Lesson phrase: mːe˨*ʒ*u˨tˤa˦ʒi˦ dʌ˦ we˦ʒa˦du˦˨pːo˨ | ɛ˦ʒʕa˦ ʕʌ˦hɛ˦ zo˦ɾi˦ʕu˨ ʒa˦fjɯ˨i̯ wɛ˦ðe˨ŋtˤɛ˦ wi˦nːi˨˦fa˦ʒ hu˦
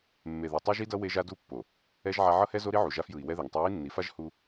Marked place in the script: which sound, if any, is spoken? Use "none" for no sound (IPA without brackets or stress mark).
ð